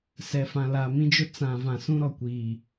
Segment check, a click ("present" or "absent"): absent